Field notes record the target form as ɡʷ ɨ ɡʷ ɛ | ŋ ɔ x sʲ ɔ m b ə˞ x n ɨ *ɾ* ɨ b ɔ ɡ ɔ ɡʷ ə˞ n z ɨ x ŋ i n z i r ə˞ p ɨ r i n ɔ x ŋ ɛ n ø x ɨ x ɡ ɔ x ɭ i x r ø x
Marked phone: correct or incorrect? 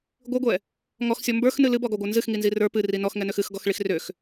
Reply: incorrect